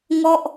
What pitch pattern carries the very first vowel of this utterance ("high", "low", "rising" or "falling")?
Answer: falling